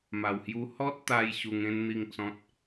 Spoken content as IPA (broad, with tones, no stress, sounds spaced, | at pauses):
m a˨˩ w h j u˧ h ɔ˦ t̚ t̪ a˧ j ɕ u˧ ŋ ẽ˦ n n̪ i˥˧ ŋ t͡s ɔ̃˦ t̚